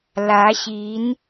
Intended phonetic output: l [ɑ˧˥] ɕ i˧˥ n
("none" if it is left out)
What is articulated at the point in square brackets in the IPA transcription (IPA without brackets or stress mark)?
ä˧˥